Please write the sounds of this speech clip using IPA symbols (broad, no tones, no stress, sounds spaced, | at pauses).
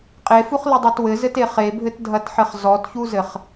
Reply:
qʼ e f u χ l ɨ dˤ o t w ɘ z ɘ t e χ e bʱ ɘ t dʱ ɐ t ħ ɘ χ z ɔ t ç u z ɘ χ